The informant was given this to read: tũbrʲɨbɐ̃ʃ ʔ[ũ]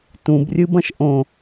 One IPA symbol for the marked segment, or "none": õ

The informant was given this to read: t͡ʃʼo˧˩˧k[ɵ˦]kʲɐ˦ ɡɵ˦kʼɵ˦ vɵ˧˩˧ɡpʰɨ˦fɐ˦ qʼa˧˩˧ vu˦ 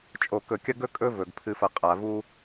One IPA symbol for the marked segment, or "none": ɵ˧˩˧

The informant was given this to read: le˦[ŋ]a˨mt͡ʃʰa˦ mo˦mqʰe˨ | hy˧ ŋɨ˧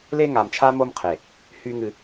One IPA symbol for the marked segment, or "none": ŋ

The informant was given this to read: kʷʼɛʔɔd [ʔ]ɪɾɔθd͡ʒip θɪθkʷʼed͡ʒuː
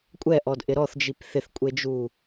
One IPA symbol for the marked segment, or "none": ʔ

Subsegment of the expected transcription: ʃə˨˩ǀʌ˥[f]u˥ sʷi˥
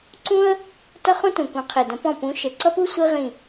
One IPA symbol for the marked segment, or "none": p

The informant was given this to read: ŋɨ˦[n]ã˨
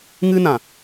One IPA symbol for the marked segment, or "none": n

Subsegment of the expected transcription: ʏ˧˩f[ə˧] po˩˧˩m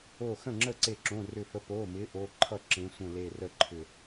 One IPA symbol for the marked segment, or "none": ə˨˥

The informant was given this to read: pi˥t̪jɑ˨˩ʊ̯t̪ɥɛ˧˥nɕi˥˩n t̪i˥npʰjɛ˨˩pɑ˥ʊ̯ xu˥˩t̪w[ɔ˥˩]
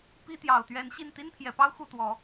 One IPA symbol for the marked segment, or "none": ɔ˨˩˦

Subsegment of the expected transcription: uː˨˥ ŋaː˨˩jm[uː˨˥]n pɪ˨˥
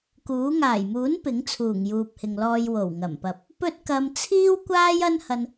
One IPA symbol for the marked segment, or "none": uː˨˥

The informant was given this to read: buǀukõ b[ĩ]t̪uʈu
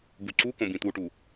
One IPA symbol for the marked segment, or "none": ĩ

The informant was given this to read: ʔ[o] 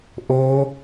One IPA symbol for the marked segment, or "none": o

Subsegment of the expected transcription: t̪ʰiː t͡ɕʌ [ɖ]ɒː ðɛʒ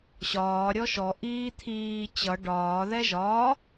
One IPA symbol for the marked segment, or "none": ɖ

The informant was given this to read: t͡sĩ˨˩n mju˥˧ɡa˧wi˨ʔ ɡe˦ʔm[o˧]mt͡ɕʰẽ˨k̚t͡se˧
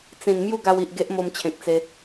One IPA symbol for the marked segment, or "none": o˧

